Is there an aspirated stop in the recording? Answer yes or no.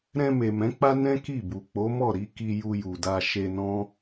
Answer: no